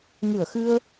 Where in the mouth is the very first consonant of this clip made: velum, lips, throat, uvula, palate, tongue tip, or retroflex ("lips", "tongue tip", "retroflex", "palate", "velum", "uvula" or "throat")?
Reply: velum